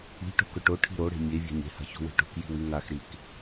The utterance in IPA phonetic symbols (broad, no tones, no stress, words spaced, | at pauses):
i̤ʈo̤ kɵʈo ʈʰi̤ɾoɽe̤ mʲevʲa̤ɲ e̤ha̤ ço̤we̤ʈo̤k ji̤wiŋaxɾik